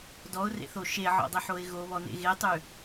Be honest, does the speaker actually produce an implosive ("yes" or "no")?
no